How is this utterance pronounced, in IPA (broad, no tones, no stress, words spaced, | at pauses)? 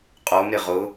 qʼom ɾɪʁʊ